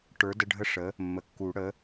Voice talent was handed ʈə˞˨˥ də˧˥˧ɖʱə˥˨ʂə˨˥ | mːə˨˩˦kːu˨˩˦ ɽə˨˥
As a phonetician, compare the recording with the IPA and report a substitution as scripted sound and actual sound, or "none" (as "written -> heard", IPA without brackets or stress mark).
none